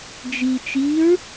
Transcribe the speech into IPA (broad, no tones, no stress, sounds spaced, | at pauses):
d͡ʒ i t͡ʃ i ɹ